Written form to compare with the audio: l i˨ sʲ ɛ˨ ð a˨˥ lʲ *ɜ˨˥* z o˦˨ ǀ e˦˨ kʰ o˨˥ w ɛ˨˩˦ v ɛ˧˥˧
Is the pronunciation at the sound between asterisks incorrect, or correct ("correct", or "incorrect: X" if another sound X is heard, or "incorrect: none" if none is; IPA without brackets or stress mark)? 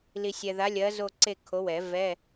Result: correct